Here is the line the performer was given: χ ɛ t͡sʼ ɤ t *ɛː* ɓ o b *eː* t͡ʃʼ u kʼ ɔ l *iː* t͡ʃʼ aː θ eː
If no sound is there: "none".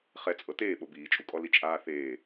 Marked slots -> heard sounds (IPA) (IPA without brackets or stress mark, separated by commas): eː, iː, i